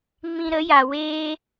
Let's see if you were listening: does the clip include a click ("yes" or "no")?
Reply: no